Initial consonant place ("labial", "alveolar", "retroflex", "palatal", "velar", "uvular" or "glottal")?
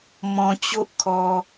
labial